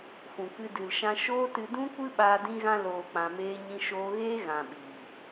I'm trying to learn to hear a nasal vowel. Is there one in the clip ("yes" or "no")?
yes